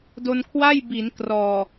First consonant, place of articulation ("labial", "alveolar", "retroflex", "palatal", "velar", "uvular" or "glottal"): alveolar